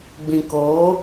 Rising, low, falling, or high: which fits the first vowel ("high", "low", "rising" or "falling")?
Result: low